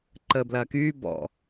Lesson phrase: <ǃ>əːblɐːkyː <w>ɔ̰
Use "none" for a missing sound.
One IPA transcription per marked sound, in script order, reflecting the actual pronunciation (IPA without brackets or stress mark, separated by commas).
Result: ǃ, b